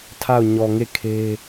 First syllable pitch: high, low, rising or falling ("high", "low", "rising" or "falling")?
falling